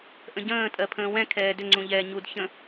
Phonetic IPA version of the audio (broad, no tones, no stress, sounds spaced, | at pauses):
ʔ ə̃ ɟ ə̃ː tʼ ɜ pʰ ə̃ː w ɛ̃ kʰ ɛː d ʏ ŋ͡ǀ ũ ʎ ɛː ɲ u d ç ə̃